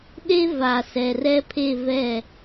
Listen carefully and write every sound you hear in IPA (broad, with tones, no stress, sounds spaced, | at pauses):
ɗ e˦ v a˨ s ɛ˨ r ɛ˦ pʰ e˦˨ v ɛ˦˨